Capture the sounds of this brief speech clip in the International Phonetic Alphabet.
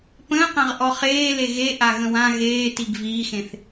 p ə̃ː q ã ʁ ʔ ɔ χ eː l e ɣ e ʔ a ɣ ə̃ w ã ɣ eː t i ɡ v iː x ẽ θ

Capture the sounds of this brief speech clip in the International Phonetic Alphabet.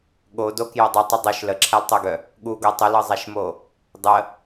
ɠ o d o k j o dˤ ɵ tˤ ə dˤ o ʃ l ə ǁʰ a l tˤ œ ɡ œ | ɠ u ɡ ɤ tˤ ə l ɤ zˤ a ʃ m o | dˤ ə

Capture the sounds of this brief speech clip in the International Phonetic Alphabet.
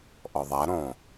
ʔ ɔ ðˤ a ɾ õ

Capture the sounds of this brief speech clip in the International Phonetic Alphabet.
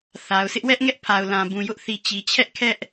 θ a˨ ʊ̯ s ɪ˦ ʔ w ɛ˦ ʔ ŋ ɛ˦ ʔ pʰ a˨ ʊ̯ l ã˨ b ũ˨ j ʊ˦ ʔ θ i˨ t͡ɕ i˨ t͡ɕʰ ɛ˦ ʔ kʰ ɛ˦ ʔ

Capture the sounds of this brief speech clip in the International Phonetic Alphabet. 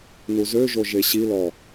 n u z ø ʒ o ʒ e ɕ i l ɔ

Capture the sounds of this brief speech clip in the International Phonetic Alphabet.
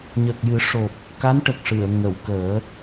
ɲ ə˨˩ k̚ j ɨ˨˩˦ ʂ o˨˩ p̚ | k a˧˥ n ʈ ə˨˩ k̚ ʂ ɨ˨˩˨ ə̯ ŋ ə˨˩˨ w k əː˨˩˦

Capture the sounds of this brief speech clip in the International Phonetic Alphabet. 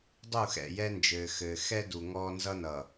dˤ u˦˨ x ɛ̰˦˨ j ɛ˦ n d͡ʒ ɘː˨ x ɘː˨ x ɛ˦ d u˨ ŋ ɔː˦ n z ʌ˦ n ʌː˨

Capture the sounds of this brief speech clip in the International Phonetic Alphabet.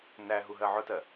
n æ ɦ u ɦ ɜ ʕ ʊ t ɜ

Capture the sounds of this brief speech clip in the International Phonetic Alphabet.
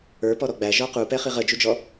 ə˞ p ɔ ɾ ɔ ɡ͡b æ ʒ ɔ q u p ɛ χ i ʁ ə d͡ʒ u d͡ʒ ɔ

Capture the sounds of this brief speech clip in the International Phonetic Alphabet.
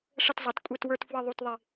ʂ ə˦˨ t zˤ ʌ˩˥ t kʷʼ ɛ˦˨ t w ə˞˦˨ t f w ə˦˨ ðˤ u˦˨ t ðˤ ɪ˦˨

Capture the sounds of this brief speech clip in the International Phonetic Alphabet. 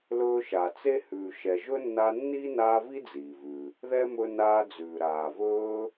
l ɵː˦ ʃ a˨ t͡s e˥ h ʉː˨ ʃ ɛ˨ ʒ ɵ˥ nː a˦ nː iː˥ n aː˦ v i˥ d͡z iː˩ v ʉ˩ | ð ɛ˥ m ɵ˦ n aː˦ d͡z ʉː˨ ɾ aː˨ v ɵː˦

